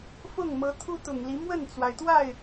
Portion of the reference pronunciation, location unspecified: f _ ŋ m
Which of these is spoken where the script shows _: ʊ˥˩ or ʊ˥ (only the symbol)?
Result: ʊ˥˩